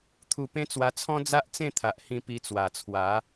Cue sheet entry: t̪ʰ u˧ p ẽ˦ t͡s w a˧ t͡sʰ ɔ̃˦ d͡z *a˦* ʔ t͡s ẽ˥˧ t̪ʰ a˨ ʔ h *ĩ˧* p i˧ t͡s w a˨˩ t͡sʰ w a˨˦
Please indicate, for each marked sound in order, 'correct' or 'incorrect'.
correct, correct

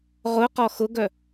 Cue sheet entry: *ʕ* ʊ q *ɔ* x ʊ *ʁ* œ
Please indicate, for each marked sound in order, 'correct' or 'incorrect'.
incorrect: ʁ, correct, incorrect: ɡ

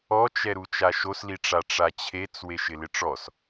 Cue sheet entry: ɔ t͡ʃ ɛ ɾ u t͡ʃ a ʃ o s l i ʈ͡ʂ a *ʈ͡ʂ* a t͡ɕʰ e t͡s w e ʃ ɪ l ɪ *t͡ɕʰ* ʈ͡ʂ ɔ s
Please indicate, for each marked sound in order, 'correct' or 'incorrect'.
correct, incorrect: none

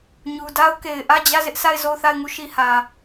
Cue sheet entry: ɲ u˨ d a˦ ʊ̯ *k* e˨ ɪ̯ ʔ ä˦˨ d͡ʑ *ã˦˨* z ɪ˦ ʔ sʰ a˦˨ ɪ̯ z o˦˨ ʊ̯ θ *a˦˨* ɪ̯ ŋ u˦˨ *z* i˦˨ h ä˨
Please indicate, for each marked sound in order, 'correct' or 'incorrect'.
correct, incorrect: ä˦˨, correct, incorrect: ʃ

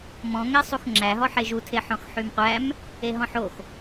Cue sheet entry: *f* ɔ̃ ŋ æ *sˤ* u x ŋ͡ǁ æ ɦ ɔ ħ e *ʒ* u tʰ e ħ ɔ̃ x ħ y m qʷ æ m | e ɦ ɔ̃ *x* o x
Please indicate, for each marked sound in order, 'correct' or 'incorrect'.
incorrect: m, correct, correct, incorrect: ħ

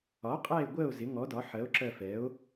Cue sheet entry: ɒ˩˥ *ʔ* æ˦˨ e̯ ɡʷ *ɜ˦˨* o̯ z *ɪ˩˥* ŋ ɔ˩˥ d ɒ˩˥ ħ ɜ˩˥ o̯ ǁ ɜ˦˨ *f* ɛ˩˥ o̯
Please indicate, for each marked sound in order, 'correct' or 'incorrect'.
incorrect: qʼ, correct, correct, correct

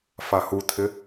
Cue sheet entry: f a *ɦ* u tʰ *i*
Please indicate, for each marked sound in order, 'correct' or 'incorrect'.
incorrect: h, incorrect: ɪ

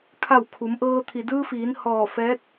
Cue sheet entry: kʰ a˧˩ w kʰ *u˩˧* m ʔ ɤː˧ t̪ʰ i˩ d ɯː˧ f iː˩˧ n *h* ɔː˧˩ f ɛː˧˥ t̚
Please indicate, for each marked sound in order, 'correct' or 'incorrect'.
correct, correct

